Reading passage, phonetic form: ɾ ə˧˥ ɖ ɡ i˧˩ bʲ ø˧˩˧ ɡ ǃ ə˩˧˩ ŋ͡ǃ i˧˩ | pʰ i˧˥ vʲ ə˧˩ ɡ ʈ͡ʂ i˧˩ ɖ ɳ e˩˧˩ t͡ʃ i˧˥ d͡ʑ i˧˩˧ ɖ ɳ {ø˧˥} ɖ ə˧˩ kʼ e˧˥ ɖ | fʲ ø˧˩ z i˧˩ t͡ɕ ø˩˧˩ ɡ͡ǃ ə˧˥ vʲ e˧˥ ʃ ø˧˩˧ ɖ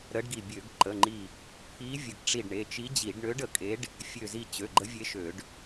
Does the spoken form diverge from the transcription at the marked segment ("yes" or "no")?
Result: no